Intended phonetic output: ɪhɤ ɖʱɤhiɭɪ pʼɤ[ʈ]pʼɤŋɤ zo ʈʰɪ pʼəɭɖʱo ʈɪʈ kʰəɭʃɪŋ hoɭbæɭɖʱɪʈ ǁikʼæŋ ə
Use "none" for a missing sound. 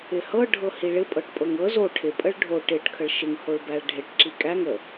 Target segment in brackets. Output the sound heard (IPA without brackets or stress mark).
ʈ